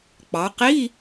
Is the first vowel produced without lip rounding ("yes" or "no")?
yes